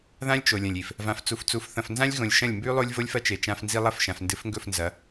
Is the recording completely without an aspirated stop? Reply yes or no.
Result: yes